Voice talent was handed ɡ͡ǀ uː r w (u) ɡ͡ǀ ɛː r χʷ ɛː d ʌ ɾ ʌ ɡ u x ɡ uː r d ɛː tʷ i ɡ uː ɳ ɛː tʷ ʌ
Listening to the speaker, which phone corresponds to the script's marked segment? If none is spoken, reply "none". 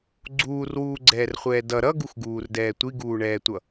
uː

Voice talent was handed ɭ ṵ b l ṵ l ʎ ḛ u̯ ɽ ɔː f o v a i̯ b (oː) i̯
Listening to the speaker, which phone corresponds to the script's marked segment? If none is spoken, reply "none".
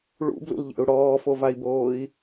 oː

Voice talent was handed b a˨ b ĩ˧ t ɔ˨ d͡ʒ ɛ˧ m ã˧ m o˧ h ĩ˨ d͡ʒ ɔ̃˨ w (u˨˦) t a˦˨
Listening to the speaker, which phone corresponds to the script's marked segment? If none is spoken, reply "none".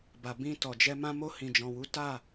u˨˦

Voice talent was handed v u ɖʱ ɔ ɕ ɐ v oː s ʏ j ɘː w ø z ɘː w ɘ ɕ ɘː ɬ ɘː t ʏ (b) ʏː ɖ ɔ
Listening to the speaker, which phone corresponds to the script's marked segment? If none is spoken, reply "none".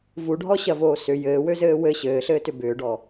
b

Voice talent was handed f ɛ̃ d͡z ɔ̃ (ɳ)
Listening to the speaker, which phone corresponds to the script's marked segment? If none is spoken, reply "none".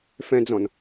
n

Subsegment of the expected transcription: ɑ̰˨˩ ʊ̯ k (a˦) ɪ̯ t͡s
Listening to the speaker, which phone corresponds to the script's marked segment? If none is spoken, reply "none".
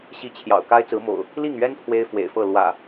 a˦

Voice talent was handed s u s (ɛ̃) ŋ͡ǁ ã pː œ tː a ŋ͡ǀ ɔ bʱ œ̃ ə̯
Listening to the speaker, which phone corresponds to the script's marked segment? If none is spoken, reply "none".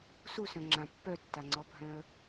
œ̃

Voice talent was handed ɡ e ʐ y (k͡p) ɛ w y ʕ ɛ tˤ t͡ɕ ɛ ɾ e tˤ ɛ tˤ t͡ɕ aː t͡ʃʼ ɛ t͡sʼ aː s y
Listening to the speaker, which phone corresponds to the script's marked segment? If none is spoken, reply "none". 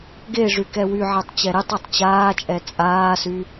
k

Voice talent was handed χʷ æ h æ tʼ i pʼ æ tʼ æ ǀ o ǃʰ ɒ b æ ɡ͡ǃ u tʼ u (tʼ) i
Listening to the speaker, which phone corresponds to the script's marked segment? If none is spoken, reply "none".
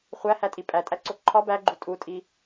tʼ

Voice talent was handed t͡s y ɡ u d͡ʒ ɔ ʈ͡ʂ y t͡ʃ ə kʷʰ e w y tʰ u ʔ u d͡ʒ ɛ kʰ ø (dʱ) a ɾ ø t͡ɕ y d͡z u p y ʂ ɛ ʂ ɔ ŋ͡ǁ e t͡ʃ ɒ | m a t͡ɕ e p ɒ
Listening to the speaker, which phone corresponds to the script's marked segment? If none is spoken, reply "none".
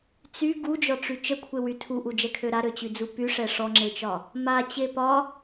ɾ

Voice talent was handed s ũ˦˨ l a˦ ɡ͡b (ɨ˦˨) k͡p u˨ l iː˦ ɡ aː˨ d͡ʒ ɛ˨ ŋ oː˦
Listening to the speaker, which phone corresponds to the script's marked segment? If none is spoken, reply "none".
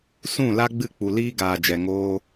ɨ˦˨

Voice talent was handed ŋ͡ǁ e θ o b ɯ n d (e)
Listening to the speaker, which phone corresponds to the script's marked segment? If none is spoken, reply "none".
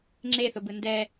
ɛ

